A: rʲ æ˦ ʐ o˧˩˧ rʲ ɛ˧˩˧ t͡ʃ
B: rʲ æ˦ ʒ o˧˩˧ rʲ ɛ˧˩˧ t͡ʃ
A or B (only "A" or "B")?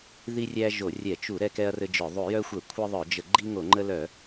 B